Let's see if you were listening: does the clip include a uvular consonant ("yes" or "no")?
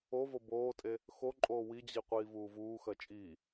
yes